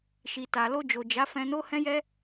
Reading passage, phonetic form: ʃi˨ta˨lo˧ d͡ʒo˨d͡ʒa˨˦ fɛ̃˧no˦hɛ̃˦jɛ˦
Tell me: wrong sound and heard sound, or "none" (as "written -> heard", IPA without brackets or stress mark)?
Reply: none